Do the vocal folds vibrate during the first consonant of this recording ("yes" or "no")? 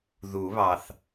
yes